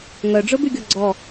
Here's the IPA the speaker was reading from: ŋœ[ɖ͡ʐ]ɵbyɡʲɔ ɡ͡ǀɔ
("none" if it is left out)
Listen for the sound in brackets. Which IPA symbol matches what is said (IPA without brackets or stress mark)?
ɖ͡ʐ